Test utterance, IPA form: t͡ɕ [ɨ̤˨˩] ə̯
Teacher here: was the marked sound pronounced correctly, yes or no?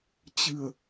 yes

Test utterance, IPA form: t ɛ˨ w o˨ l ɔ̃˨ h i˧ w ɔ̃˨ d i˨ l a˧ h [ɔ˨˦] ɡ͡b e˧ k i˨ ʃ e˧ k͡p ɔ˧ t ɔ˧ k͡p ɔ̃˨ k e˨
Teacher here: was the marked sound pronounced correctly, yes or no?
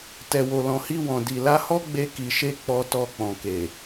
no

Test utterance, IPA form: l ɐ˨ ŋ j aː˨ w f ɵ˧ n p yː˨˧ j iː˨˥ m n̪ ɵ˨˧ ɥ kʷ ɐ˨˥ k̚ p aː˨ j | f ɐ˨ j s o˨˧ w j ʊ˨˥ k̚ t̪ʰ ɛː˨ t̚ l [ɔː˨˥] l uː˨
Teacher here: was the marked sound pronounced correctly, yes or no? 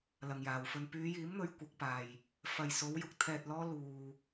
no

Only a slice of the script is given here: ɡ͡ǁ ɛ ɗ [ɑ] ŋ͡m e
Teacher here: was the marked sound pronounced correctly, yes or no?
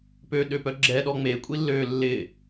no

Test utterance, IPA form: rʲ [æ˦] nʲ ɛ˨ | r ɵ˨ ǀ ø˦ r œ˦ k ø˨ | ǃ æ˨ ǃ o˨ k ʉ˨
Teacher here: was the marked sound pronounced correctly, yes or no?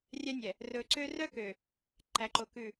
yes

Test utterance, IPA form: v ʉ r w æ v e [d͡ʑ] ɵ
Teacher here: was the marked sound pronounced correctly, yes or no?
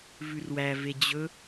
yes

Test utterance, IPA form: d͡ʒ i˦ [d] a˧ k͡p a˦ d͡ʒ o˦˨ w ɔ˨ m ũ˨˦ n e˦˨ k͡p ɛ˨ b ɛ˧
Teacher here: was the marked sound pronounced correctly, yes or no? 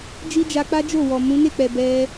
no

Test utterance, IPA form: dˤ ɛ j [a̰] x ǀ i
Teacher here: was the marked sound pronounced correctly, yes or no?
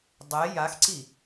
no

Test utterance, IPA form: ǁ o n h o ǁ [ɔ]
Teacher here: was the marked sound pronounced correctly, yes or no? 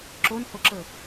no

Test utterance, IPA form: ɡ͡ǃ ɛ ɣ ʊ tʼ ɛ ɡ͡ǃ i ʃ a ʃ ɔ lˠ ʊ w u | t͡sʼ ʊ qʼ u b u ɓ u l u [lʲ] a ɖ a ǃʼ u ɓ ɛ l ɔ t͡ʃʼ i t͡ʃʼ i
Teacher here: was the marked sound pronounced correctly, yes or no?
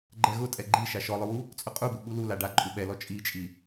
no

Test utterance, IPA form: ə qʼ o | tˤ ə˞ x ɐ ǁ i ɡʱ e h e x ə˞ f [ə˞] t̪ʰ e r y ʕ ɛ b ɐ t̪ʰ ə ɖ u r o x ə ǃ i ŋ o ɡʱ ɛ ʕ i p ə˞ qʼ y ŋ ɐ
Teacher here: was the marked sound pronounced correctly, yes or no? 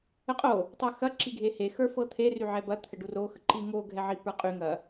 no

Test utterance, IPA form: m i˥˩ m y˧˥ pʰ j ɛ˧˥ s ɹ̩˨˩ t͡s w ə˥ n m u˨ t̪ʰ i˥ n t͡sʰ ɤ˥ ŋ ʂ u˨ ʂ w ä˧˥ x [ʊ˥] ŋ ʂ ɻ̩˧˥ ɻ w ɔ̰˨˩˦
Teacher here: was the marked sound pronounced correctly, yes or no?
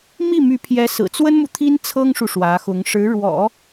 no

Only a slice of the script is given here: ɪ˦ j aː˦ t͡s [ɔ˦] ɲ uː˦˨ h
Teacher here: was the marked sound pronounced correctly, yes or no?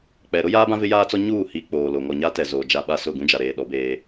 yes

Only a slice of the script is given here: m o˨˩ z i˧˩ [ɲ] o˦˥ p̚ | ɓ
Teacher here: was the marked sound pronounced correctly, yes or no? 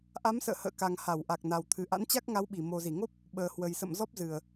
no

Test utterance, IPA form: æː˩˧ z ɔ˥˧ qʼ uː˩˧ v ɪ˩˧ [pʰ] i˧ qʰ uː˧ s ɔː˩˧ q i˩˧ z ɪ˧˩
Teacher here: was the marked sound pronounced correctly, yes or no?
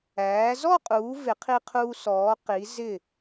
no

